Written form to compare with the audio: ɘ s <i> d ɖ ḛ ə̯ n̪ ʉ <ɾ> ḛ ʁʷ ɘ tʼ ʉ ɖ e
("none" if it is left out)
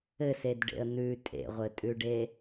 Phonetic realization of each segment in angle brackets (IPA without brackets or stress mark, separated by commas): e, tʼ